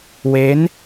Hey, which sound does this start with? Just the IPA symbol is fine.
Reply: w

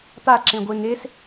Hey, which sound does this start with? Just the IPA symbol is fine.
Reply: t̪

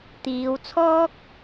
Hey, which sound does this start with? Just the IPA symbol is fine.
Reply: t̪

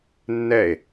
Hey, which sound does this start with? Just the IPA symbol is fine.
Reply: nː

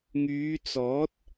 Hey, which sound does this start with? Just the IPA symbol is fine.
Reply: ŋ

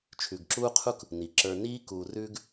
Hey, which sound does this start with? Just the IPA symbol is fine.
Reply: t͡ʃʰ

